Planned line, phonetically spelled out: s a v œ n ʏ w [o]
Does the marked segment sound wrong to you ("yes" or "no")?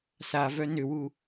yes